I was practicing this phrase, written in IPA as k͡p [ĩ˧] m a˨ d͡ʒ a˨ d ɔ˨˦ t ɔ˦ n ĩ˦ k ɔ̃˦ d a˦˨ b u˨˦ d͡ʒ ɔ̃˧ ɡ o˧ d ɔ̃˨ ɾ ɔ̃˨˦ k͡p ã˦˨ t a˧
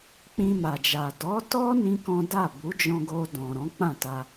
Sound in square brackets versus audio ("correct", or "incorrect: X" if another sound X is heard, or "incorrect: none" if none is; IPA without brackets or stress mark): correct